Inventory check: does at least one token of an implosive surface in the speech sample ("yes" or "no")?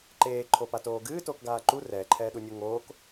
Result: yes